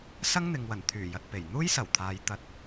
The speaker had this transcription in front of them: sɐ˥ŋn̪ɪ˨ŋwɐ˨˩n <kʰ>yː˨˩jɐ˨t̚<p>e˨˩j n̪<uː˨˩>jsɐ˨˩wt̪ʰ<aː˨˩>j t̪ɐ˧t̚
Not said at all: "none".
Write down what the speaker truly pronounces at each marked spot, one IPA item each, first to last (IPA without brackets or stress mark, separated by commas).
t̪ʰ, p, uː˥, aː˨